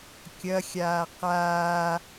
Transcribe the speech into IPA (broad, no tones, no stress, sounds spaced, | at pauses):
kʲ ɐ xʲ aː q aː